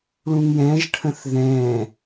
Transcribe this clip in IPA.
ɭũŋjɛ̃ʒʈʰə̃θ ðɛ̃

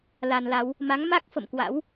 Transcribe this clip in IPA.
la˧nla˨˦w | ma˨˦ŋma˦˥k̚ fə̰˧˨mkwa̰˧˥w

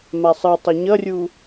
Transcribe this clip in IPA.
masˤɯ tˤʌɲʌrʲu

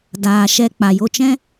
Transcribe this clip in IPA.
daː˨ʃɛ˧ k͡pa˨jo˧t͡ʃɛ̃˦

